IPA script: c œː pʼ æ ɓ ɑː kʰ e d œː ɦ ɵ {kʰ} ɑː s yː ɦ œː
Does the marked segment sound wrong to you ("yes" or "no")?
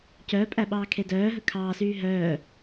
no